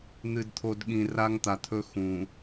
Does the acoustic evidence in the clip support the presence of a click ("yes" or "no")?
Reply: no